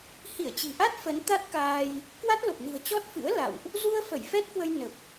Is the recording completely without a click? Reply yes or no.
yes